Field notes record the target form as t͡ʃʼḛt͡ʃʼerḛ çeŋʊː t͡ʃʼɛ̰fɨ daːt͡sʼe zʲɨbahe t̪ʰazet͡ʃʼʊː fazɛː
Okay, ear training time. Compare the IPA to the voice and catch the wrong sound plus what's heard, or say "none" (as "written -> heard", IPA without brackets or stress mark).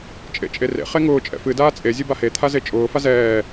ç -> χ